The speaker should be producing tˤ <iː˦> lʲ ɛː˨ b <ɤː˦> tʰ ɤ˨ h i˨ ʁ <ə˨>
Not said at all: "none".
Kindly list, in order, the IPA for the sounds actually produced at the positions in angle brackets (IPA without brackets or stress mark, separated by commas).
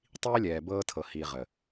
iː˦, ɤː˦, ə˨